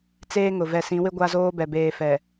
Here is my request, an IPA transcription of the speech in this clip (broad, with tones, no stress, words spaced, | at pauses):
t͡seː˦ŋʊ˨ vɛ˨sĩ˨˦wɪ˦ ɡʷa˦zoː˦bɛ˨ beː˨fɛ˨